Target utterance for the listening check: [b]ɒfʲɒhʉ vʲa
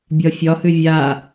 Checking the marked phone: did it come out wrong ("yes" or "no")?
yes